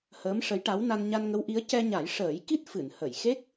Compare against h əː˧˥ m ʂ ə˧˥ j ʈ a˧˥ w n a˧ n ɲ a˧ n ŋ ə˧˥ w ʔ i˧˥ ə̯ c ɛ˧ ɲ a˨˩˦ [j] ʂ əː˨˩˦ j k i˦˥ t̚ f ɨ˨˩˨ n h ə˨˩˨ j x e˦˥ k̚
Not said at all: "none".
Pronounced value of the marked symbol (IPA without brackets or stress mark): j